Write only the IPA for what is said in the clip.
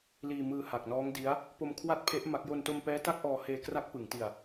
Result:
liː˧mɯː˧ ha˨˩k̚nɔː˦˥ŋdi˦˥a̯ | po˧m kʰwa˥˩t̚pʰe˦˥ʔ ma˦˥k̚ jo˧nto˧mpɛː˦˥ ta˥˩k̚ʔɔː˧ heː˧kra˦˥k̚pɯ˩˦ŋti˧a̯

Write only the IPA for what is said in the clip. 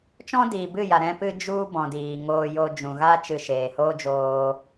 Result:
t͡ʃɔ̃˦diː˨bɨ˦˨ja˨ ɾɛ̃˦pɨ˦ d͡ʒu˦ bɔ̃˨diː˨ŋoː˧ jo˧d͡ʒũ˨ɣa˦ t͡ʃɨ˧ʃeː˨hoː˦d͡ʒoː˧

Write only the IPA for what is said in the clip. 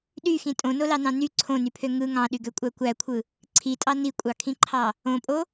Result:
ɗyxĩ tʼõnolɑnɑ̃ ny ǀʰõnypʰø ŋɯ ŋɑ̃ɗyɡøkʷʼæ kʷækʷʰɯ | ǀʰitʼɑ nikʷʼɑkʰĩǃʰɑ | õpʼo

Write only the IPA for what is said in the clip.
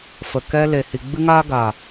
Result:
fə˨kɛ˦ le˨hi˨ ɡ͡bɨ˦ŋaː˦ɡaː˨

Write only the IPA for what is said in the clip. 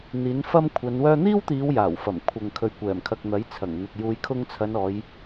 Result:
n̪iː˨˥nfɐ˥m kʷʰɐ˨˧n wœː˧n̪iː˥wt̪iː˨˧w jaː˨˩wfɐ˨˩m kʷʰɐ˨ŋ kʰɵ˨ɥkʷɛː˨˩mkʰɐ˨k̚ n̪ɐ˨˥jt͡sʰɐ˨˩ŋn̪ɪ˨k̚ juː˨˧jkʰʊ˧ŋt͡sʰɐ˨˧nɔː˨˧j

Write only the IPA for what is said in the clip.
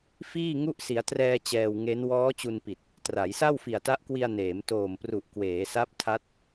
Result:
fiː˥˩ŋu˥˩ʔ si˩˦a̯trɛː˧ t͡ɕɛː˧wŋe˦˥n wɔː˦˥t͡ɕu˧npi˨˩t̚ | tra˩˦jsa˥˩w fi˨˩a̯ta˦˥ʔkwi˧a̯ neː˩˦mtoː˨˩mpru˨˩ʔ kweː˩˦sa˦˥p̚tʰa˦˥t̚

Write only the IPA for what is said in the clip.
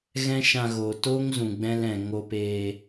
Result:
ɣɛ̃˦ʃã˧ɣoː˨ toː˦ŋ zũ˨ɡ͡bɛ̃˧lɛ̃˨ ŋo˧peː˧

